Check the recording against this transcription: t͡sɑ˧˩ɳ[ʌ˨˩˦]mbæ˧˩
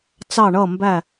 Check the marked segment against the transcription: incorrect: ʌ˧˩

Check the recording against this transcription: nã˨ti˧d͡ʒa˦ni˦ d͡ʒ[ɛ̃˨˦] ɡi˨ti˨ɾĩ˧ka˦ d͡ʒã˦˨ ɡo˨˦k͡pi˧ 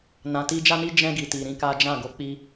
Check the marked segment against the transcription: incorrect: ɛ̃˧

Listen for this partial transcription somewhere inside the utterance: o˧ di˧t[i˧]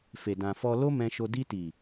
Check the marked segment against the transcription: incorrect: i˨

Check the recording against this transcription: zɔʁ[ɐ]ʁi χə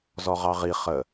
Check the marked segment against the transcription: incorrect: ɑ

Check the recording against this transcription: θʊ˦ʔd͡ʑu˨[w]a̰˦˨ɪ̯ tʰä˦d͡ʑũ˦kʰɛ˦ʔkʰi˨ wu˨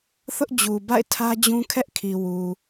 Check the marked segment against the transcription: incorrect: b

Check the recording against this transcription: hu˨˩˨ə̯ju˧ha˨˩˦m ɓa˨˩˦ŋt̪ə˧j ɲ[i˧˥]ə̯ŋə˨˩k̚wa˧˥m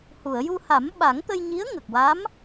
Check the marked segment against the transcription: correct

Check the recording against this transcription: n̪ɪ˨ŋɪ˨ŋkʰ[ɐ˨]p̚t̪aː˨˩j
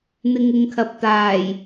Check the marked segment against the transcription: correct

